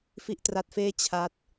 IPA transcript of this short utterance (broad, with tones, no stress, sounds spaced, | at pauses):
f i˥˩ ʔ t r a˦˥ t̚ f eː˥˩ t͡ɕʰ a˦˥ t̚